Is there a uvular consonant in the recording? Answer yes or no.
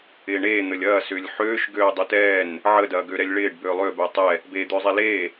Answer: no